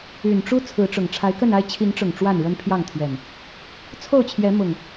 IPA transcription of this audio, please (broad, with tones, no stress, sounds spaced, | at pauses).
y˨˩ n ʈ͡ʂ u˦ t͡sʰ ɹ̩˨˦ ʈ͡ʂ ʊ˨˩ ŋ ʈ͡ʂʰ a˨˦ ɪ̯ k ə˥˨ n a˦ ɪ̯ t͡ɕʰ i˨˦ ŋ ʈ͡ʂ ʊ˨˩ ŋ ʈ͡ʂ w a˥˨ n ɻ ə˦ n pʰ j ɑ˥˨ ŋ t̪ʰ ɥ ɛ˨˩ n | t͡sʰ o˥˨ ʊ̯ t͡ɕʰ j ɛ˨˦ m ʊ˨˩ ŋ